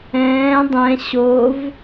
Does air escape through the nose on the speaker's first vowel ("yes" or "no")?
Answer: yes